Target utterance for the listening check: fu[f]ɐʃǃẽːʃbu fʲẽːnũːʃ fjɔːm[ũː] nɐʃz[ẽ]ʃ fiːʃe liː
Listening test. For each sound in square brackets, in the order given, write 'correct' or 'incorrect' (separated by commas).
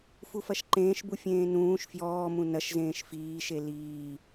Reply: correct, incorrect, incorrect